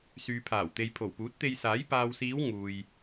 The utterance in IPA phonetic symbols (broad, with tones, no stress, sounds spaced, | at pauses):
s yː˨ pʰ aː˨˩ w t̪ e˨ j pʰ o˨˩ w p uː˨˥ t̚ t̪ e˧ j s aː˨˥ j p aː˨ w s iː˨˧ w ŋ uː˨ j